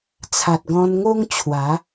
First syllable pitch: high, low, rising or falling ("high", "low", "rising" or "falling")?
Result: low